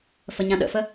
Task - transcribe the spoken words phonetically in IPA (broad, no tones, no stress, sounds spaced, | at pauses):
f ə ɲ ã ɗ ə̰ f ə